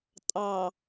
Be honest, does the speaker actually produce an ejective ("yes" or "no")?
yes